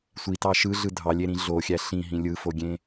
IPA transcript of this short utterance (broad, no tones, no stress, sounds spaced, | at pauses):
sʷ i t ɑ ʃ ɯ ɮ ɯ dʱ ɑ lʲ e ɾ ĩ ɮ o xʲ æ ɬ ĩ ɦ ĩ lʲ ɯ f o ɡʲ ẽ